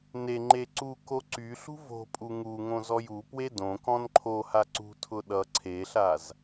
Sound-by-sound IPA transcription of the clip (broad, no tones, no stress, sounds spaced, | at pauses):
n e ŋ͡ǃ e ǀ u k o ǀ y ɬ ṳ v o̤ pʼ u ŋ u ŋ õ z ɔ j u p w e d õ k ɔ̃ n ǃʰ o h a ǀ ṳ tʰ ʊ ɗ ʌ ǀʰ e ɬ a z